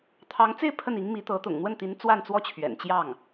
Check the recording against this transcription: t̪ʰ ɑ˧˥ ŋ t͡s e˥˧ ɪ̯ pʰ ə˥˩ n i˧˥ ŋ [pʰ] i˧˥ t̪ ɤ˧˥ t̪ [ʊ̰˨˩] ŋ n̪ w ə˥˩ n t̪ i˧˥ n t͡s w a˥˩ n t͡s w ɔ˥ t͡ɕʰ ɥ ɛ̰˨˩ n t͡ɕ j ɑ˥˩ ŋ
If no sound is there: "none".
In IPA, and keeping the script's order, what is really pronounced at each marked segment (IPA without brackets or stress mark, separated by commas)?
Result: m, ʊ̰˨˩